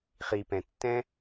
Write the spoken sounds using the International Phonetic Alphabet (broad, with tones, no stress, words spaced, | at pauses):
χi˨pɛ̃˨ tːɛ̃˦